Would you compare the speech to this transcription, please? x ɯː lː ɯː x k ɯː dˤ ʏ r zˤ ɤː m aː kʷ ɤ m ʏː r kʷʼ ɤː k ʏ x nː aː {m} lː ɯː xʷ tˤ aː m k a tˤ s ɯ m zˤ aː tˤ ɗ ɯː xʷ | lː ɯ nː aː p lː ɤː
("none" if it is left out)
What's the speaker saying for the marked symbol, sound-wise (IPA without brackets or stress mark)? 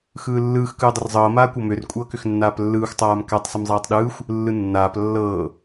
p